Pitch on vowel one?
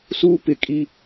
high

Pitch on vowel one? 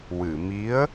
low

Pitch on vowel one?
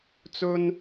high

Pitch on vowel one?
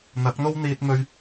rising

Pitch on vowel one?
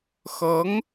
rising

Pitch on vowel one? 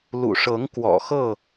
low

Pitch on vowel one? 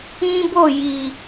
high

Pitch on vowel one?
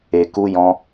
low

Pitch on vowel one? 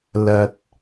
high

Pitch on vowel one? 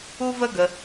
high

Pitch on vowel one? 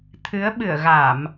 rising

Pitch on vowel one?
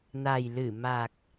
low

